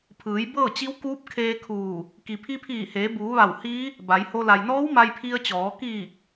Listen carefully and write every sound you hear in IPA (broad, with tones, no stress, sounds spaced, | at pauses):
pʰ ɯː˩˧ j b ɤː˥˨ t͡ɕ i˧˥ w k uː˧˥ p̚ kʰ eː˧ kʰ uː˧˩ | k i˩ pʰ i˧ pʰ iː˧˩ h eː˩˧ b uː˩˧ ʋ a˧˩ w h iː˧˥ | b a˩˧ j h o˧ l a˩ j n ɔː˧˥ w m a˧ j pʰ i˧ ə̯ t͡ɕ ɔː˩˧ k iː˧˩ k̚